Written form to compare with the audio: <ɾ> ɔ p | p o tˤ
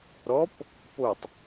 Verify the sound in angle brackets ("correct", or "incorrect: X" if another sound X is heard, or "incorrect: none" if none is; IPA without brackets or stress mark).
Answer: correct